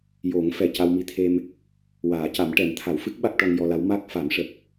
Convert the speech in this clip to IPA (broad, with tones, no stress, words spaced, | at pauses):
jo˨˩˦ŋ fɛ˨˩ca˧wmi˧t̪ʰe˧m | waː˨˩˦ca˨˩˦m ʈɛ˨˩˦mt̪ʰa˨˩˦w fɨ˦˥k̚ ɓa˦˥k̚ʈɔ˧ŋjɔ˧la˧˥w ma˦˥k̚ fa˨˩˦mʂə˨˩k̚